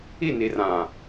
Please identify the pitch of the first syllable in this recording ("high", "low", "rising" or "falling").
falling